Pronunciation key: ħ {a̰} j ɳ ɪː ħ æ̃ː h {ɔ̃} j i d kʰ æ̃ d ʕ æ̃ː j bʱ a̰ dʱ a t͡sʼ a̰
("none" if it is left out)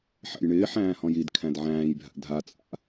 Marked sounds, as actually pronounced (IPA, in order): æ̰, ɔ̃

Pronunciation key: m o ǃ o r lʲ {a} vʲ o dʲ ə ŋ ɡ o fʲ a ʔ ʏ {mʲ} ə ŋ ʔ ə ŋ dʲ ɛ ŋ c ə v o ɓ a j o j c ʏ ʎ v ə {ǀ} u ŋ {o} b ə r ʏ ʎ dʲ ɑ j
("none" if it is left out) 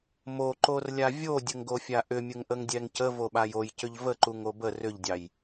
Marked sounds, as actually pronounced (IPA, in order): a, mʲ, ǃ, o

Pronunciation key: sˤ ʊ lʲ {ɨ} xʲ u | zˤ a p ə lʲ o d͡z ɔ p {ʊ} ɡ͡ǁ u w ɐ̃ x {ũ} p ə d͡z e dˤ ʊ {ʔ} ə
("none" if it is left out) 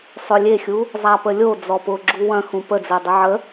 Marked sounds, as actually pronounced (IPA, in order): e, ʊ, ũ, ʕ

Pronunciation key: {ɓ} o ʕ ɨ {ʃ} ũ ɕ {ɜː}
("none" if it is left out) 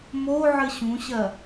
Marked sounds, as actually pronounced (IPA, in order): m, ɕ, ɜ

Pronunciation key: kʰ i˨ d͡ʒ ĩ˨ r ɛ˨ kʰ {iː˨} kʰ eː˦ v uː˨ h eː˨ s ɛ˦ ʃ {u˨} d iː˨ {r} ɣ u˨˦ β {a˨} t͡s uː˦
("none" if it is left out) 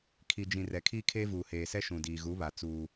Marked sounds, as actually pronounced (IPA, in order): iː˦, ũ˨, none, a˨

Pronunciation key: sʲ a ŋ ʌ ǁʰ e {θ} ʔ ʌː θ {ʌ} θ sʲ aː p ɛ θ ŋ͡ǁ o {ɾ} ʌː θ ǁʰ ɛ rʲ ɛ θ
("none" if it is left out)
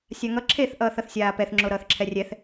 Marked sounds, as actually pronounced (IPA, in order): θ, ʌ, ɾ

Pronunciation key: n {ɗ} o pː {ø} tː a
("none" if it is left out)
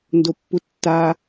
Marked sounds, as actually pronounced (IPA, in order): d, u

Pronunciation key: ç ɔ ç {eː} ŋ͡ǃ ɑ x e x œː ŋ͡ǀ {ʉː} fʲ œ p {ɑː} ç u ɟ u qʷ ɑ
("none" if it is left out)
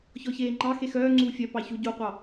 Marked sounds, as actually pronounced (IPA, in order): eː, uː, ɑ

